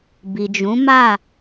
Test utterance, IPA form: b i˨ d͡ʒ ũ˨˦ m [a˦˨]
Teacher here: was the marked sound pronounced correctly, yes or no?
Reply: yes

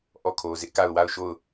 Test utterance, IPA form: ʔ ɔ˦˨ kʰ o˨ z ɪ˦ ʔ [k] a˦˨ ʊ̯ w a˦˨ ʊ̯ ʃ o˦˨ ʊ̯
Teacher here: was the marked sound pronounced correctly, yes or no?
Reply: yes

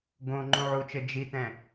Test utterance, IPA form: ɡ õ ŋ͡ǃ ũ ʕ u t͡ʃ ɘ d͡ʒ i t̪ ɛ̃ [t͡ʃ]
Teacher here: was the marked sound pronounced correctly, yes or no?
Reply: no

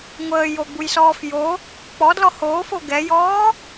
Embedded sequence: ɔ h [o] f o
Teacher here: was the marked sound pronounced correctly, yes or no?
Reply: no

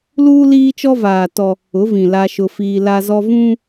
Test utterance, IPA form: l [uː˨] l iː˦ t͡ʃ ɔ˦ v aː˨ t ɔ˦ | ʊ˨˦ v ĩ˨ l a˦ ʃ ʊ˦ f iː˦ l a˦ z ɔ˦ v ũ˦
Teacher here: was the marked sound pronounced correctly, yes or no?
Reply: no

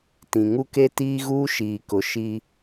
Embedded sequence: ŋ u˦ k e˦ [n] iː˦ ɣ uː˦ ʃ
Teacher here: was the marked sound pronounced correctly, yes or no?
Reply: no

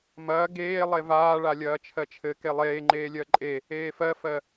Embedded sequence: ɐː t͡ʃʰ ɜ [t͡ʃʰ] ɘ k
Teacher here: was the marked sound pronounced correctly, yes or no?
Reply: yes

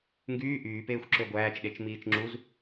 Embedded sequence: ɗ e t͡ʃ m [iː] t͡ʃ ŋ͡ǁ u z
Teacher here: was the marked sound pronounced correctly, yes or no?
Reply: yes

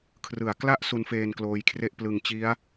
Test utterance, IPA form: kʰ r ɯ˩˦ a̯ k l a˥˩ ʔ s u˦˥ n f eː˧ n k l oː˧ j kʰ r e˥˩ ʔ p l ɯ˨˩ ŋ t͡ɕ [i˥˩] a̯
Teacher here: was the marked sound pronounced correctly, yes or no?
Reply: no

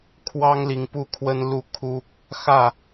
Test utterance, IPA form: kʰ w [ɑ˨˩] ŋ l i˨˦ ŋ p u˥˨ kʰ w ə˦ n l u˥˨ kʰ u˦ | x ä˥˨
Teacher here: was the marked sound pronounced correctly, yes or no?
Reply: no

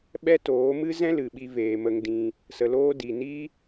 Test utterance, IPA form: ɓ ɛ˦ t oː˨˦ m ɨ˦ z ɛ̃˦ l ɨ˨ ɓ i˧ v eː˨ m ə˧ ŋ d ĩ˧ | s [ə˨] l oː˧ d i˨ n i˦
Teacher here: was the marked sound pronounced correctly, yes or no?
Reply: yes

